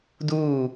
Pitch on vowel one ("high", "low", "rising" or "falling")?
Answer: falling